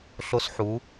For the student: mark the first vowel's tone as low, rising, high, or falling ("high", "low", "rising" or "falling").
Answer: high